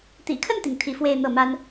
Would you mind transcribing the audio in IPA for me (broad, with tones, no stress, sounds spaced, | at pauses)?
t̪ ḭ˨˩ kʰ ə˥˩ n t̪ i˩ ŋ t̪ʰ i˧˥ f w e˥˧ ɪ̯ n̪ ɤ˥˩ m a˥ n